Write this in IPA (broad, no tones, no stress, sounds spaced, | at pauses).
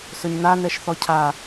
s ɵ ɲ n a n ɛ ʃ θ ɔ cʰ a